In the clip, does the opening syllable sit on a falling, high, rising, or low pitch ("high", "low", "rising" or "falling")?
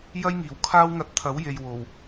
high